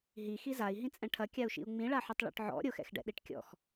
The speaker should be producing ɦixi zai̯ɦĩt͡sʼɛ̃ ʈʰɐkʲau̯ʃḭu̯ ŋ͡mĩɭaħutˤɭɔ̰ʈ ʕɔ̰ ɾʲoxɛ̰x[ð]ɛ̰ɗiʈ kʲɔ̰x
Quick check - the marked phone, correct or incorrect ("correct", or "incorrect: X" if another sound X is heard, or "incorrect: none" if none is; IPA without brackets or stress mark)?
incorrect: ɖ